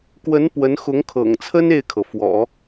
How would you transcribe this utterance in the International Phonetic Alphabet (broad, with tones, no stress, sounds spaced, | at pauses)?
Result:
k w ə˧˥ n p w ə˧˥ n x ʊ˧˥ ŋ kʰ ɤ̰˨˩ ŋ t͡sʰ ə˥ n e˥˩ ɪ̯ kʰ ɤ˩ f w ɔ̰˨˩˦